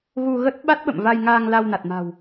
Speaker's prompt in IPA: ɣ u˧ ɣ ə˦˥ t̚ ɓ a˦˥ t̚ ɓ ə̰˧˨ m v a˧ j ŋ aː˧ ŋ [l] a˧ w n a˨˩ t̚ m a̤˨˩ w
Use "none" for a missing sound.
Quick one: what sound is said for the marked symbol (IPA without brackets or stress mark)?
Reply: l